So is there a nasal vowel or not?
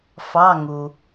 no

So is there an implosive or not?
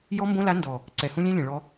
no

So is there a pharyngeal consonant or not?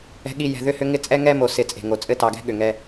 no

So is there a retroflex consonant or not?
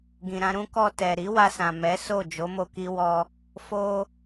no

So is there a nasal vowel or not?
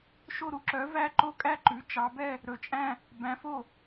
yes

